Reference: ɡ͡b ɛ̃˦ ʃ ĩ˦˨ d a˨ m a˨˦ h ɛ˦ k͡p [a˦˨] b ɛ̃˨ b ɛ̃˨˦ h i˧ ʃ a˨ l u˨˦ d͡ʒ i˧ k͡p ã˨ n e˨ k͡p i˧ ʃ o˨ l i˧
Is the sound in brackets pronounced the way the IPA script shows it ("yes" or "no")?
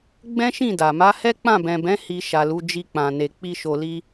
no